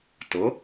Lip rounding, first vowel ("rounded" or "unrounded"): unrounded